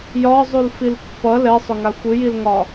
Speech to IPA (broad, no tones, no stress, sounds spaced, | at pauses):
j ɒ zˤ u l f i l pː ʌ l ɛ sˤ ʏ ŋ a xʷ ɨ j i l ŋ ɒ